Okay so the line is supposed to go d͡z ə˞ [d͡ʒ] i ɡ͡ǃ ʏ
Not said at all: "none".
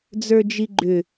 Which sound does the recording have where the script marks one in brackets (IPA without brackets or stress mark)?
d͡ʒ